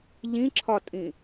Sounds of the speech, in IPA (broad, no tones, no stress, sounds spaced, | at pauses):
ʎ ĩ ǁʰ ɒ tʼ ĩ